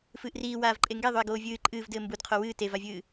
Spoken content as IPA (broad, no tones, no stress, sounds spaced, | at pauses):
f ɨː ʔ r iː w aː v ǃʼ e ŋ ɡ e ðˤ o e̯ ɡ oː vʲ ɨː ǃʼ ɨː v d ɘː m b u d qʰ o w ɨː t e v a vʲ ɨː